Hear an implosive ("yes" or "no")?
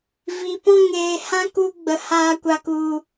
no